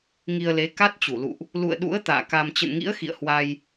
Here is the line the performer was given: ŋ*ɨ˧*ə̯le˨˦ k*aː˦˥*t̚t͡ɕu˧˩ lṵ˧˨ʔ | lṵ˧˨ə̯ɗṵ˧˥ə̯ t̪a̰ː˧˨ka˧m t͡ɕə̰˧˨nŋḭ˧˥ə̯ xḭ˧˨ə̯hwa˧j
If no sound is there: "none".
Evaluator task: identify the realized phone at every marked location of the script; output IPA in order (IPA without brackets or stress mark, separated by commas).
i˧, a˦˥